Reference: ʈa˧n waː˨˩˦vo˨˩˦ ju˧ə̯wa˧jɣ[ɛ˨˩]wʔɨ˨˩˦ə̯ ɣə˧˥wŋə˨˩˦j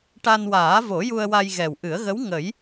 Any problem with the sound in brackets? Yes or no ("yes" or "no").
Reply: no